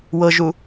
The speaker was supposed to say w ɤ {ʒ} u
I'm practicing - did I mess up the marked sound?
no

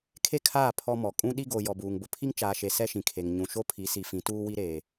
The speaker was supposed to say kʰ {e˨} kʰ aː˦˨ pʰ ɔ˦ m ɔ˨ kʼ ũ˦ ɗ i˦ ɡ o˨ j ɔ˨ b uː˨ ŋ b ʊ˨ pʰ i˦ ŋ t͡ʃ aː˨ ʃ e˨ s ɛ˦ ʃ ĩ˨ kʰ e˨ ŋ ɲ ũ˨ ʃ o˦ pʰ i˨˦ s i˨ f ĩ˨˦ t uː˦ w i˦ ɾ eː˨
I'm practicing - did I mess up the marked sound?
yes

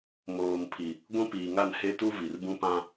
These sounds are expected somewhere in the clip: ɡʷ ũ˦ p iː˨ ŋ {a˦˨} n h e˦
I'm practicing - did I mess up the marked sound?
no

